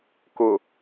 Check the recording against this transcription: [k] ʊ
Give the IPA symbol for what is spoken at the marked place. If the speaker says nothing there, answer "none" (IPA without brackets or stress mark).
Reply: k